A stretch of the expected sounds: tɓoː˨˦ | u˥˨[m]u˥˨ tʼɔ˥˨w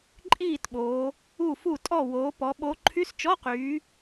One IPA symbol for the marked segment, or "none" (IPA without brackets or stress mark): f